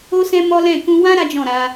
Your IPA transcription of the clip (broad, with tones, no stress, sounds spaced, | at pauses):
o˦ s ɛ̃˦ m ɔ˦ l ɛ̃˦˨ k ũ˧ w ã˦ ɾ a˦ d͡ʒ ɔ̃˦˨ ɾ a˧